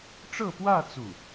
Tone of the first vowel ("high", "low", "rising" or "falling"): falling